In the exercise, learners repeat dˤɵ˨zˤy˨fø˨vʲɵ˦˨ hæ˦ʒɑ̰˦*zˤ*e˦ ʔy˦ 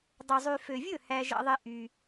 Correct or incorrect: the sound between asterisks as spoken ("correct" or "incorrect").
incorrect